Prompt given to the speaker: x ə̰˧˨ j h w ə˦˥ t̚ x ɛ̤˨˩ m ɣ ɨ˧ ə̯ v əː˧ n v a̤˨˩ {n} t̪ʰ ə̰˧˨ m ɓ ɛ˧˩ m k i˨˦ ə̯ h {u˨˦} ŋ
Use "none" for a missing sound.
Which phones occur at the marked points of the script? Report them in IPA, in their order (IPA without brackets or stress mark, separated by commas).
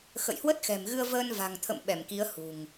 ŋ, ṳ˨˩